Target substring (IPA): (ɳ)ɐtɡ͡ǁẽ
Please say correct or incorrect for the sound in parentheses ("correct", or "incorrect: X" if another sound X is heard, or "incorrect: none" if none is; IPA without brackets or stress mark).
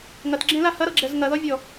incorrect: ŋ